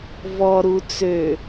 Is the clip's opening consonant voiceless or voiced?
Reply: voiced